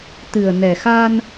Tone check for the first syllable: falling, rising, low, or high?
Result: low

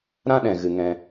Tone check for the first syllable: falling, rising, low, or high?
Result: high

